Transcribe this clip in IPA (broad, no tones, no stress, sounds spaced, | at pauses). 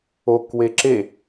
o k w e ǁ e